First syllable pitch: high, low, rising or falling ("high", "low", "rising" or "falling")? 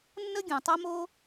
high